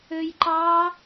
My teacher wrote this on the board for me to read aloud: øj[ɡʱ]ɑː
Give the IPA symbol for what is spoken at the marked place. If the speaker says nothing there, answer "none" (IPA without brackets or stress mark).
ǃ